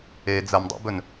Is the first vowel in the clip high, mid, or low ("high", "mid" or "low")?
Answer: mid